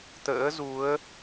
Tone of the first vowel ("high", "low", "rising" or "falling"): rising